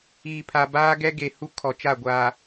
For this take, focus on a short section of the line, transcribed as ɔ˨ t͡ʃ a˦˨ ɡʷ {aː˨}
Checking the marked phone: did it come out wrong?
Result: no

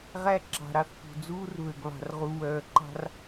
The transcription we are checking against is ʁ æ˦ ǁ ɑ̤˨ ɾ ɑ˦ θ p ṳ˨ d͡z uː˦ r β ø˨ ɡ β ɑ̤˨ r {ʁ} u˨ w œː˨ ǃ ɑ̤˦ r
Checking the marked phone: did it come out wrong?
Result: no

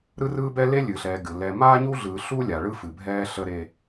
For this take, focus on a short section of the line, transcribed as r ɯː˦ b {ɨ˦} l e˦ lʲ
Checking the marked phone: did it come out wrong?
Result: yes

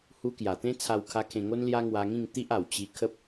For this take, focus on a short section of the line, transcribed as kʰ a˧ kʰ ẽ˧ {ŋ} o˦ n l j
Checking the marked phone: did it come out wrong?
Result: no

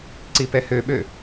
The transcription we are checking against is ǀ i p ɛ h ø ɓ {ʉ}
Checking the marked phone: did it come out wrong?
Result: yes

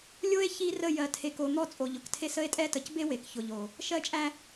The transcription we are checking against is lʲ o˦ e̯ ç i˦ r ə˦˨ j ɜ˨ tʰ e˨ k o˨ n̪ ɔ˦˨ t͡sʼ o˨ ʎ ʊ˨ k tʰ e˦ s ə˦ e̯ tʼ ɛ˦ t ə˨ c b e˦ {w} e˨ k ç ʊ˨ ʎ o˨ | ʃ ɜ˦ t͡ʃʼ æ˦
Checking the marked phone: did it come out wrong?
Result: no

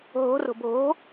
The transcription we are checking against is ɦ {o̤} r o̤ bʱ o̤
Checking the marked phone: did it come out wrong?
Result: no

